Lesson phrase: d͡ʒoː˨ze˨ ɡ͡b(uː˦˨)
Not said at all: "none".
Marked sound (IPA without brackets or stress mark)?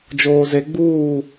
uː˦˨